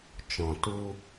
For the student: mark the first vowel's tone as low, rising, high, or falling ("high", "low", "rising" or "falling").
low